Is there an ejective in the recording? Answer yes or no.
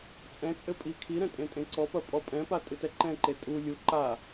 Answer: yes